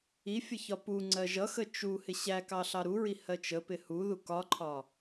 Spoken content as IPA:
i fʲ ə ç ɒ p u ŋ͡ǀ ɜ ʒ ʌ x ə t͡ʃ u h ɪ ɕ æ k ɑ ɬ ɑ ɾ u ɹ i h ɜ t͡ʃ ə p ɪ h u ð u k ɒ ǃʰ ɒ

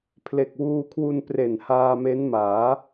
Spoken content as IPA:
pʰ l e˨˩ k̚ w uː˧ kʰ w u˧ n p r e˨˩ n h aː˧ m e˦˥ n m aː˩˦

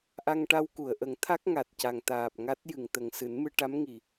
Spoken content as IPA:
ʔ a˧ ŋ ʈ a˧ w k u˨˩˨ ə̯ ʔ ə˨˩˦ ŋ t̪ʰ a˦˥ k̚ ŋ a˨˩ t̚ c a˨˩ ŋ t̪ aː˨˩ p̚ ŋ a˦˥ t̚ j ɨ˨˩˨ ŋ t̪ ə˨˩ ŋ s ɨ˨˩˦ n m ɨ˧ ʈ a˧˥ m ŋ i˨˩

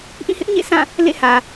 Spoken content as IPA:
ʔ ĩ˦˨ h ɪ˦ ʔ ɲ ḛ˦˨ s ã˦˨ | l ḛ˦˨ h ä˨

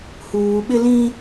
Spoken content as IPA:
h uː˨ ɓ ɪ˦ l ĩ˦

